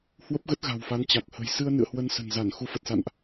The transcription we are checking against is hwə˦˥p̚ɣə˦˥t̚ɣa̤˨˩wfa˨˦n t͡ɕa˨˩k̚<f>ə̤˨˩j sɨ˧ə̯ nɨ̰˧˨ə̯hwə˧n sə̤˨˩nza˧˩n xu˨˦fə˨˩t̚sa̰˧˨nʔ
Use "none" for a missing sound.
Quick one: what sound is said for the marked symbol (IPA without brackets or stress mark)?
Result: h